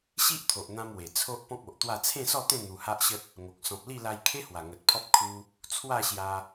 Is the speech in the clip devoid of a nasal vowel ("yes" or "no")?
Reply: no